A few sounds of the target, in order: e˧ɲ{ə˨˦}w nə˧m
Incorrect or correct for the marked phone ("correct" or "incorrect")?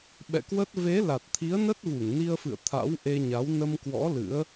incorrect